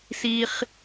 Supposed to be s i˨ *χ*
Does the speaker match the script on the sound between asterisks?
yes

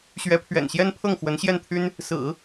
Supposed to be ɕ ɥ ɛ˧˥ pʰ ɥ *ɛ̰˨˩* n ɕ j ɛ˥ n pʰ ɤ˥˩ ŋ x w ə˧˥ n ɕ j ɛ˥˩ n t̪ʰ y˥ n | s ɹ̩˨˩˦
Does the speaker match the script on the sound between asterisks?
yes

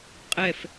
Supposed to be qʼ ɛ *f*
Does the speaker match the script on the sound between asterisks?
yes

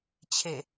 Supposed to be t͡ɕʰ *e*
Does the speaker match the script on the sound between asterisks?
yes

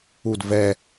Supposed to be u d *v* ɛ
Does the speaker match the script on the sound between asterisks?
yes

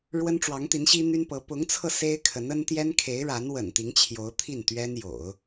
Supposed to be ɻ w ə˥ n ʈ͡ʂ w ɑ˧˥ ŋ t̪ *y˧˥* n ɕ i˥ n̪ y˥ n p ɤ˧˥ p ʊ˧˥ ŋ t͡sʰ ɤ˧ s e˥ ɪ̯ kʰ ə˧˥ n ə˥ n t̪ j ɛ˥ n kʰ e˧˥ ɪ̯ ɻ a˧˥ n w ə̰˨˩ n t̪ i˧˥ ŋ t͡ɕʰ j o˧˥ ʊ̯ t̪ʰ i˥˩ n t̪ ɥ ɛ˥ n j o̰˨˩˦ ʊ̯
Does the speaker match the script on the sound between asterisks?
no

